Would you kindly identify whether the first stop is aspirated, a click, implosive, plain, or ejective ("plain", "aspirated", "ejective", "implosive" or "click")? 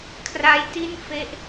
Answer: aspirated